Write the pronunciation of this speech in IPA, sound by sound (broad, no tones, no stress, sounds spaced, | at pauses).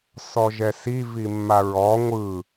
s ɔ ʒ ɛ s i v i mː a ɹ ɔ ŋʷ ɯ